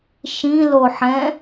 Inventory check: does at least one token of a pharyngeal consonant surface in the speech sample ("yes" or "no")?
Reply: yes